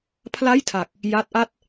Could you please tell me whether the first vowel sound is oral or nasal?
oral